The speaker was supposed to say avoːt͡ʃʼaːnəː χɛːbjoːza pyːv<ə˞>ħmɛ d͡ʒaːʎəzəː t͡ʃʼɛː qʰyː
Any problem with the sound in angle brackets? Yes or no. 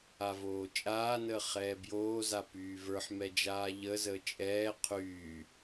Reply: no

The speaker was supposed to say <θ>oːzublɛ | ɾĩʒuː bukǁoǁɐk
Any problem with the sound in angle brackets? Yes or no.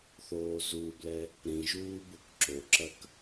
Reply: no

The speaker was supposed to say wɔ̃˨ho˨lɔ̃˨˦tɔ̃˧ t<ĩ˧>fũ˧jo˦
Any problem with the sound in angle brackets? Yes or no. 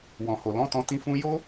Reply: no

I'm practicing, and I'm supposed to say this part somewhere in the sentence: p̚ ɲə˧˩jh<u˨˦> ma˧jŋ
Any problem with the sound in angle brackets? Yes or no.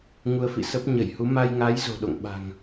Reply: no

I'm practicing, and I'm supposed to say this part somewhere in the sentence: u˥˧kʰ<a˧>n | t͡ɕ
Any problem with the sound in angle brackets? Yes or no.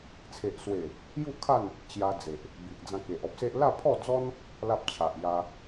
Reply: yes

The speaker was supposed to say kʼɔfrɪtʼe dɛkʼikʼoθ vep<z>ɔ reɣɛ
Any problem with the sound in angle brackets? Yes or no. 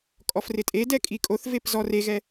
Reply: no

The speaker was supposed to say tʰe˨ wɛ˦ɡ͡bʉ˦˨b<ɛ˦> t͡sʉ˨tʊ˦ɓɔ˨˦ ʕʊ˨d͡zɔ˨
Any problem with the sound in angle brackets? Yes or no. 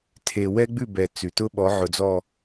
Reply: yes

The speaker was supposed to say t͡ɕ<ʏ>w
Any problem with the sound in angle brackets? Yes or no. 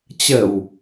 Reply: yes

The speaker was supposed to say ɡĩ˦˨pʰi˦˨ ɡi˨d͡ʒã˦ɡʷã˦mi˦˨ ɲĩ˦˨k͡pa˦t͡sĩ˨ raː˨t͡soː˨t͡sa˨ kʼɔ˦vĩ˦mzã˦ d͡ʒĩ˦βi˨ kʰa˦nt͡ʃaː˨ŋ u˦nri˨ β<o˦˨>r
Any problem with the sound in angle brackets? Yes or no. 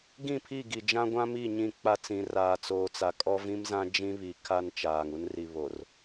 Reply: yes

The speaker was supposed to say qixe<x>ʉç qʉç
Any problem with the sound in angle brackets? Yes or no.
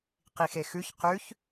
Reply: no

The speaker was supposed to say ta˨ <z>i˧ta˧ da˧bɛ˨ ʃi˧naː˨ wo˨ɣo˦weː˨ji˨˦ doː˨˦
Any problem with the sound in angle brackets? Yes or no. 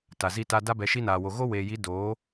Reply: no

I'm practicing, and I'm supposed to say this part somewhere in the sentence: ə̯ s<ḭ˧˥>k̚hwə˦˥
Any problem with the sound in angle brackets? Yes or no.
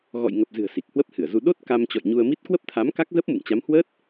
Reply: yes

